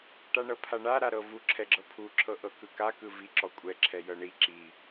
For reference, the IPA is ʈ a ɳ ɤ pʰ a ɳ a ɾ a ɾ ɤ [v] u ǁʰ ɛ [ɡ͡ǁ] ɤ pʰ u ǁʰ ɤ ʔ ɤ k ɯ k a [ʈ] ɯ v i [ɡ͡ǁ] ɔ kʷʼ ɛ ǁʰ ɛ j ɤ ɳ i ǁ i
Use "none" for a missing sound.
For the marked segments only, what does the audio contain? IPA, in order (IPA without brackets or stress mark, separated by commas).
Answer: v, ɡ͡ǁ, k, ǁ